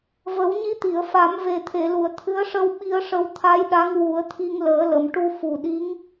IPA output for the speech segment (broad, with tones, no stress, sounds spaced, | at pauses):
v ə˨˩˦ w ɲ i˧ t̪ i˨˩˨ ə̯ f a˨˩˦ m v e˨˩ t̪ʰ e˨˩˨ l u˨˩˨ ə̯ t̪ʰ ɨ˧˥ ə̯ ʂ ə˧ w ɓ i˧ ə̯ ʂ ə˧ w t̪ʰ a˧˥ j ɗ a˧˥ ŋ w u˨˩˦ ə̯ t̪ʰ i˧ ŋ l əː˨˩˦ l ə˨˩˨ m ʈ u˧ f u˨˩ ɗ i˧˥ ŋ